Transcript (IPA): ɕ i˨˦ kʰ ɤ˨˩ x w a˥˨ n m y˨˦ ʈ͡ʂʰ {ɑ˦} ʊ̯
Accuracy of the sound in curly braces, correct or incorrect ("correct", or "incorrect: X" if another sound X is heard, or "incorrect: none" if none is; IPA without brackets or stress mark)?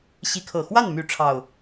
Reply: incorrect: ɑ˨˩